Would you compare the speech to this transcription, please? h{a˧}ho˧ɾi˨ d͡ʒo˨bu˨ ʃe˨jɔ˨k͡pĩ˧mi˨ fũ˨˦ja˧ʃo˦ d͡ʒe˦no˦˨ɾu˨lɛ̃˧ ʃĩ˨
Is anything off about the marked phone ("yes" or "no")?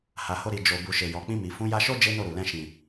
yes